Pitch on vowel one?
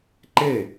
falling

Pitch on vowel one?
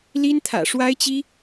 high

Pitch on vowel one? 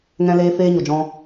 high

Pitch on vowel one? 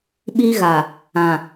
high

